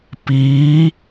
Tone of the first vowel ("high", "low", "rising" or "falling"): rising